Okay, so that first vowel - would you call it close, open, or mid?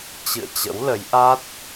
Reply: close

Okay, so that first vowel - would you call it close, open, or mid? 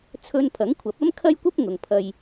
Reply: mid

